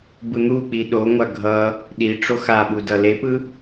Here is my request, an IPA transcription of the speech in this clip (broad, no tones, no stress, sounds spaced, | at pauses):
b ɯ n̪ u k͡p i ɗ o ŋʷ a ɡʱ ʌ | ɗ i ʈ͡ʂ o x a ɓ u d ʌ l e p ɯ